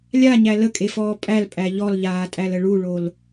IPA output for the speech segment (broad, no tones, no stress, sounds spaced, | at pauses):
lʲ a ɲ æ l ə kʼ e f ɔː pʼ æ l pʼ æ ʎ ɔ l ʎ aː tʼ æ l ə ɭ u ɭ o l